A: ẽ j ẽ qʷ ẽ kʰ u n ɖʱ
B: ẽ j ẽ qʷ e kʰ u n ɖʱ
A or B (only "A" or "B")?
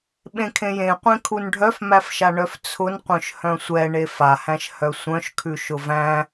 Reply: A